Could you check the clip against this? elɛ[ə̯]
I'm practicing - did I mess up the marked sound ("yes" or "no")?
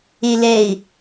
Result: yes